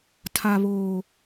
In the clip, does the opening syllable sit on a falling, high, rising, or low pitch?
low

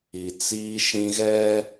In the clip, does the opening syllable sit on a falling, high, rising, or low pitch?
low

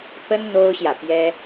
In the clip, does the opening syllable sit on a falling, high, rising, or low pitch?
high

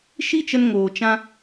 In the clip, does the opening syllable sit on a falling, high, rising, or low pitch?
high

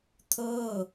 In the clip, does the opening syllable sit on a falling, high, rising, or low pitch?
falling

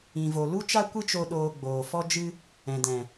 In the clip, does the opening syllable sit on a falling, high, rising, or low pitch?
low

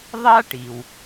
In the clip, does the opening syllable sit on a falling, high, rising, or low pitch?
high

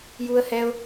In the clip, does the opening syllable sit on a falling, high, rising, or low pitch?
high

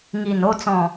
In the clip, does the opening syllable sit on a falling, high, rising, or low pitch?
low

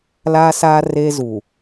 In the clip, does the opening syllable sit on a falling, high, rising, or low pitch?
high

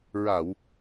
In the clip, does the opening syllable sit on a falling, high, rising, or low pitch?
low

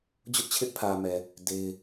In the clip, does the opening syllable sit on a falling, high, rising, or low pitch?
high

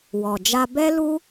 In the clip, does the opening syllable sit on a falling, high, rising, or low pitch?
low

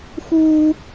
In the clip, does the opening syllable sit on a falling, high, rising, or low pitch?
high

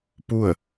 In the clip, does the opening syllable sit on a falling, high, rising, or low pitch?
falling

